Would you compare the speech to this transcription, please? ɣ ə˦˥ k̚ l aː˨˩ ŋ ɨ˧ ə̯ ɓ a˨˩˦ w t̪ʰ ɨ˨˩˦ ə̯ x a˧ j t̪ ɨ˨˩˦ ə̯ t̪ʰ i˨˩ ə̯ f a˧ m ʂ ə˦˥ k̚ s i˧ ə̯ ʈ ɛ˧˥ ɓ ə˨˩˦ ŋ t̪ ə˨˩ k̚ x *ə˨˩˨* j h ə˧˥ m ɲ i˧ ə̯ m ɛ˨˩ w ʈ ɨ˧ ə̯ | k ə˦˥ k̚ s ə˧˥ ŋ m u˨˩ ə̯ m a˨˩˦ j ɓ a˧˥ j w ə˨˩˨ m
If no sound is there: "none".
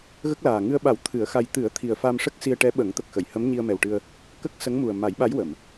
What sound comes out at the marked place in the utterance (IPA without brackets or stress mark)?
ə˨˩˨